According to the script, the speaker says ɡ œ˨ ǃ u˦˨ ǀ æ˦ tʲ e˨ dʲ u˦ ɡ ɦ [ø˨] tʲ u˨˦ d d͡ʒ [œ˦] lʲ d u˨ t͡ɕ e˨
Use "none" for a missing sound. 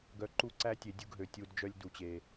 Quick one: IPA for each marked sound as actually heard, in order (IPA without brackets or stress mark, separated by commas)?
ø˨, œ˦